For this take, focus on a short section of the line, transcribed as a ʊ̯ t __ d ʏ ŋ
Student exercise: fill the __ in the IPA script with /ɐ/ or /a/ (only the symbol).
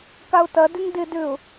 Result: ɐ